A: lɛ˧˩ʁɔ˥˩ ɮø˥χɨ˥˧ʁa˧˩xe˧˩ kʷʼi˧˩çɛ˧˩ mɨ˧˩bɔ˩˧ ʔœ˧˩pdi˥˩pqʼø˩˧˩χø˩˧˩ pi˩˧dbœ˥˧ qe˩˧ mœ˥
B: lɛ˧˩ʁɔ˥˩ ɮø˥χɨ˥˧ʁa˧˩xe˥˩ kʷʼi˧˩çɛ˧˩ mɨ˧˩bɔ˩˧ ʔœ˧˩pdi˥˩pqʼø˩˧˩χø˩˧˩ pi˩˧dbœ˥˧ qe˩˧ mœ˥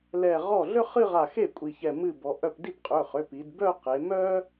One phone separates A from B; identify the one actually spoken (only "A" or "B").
B